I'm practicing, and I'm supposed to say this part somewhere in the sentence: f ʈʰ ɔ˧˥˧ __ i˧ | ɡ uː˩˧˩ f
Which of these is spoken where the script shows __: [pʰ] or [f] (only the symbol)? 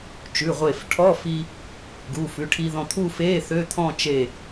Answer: f